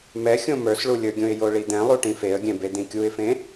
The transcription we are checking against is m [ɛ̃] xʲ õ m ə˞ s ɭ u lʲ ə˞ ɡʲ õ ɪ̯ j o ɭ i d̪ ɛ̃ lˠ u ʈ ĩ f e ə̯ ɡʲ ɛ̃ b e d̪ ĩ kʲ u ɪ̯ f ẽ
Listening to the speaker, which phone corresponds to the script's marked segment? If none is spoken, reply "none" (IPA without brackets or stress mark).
ɛ